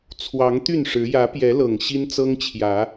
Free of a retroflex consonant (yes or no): no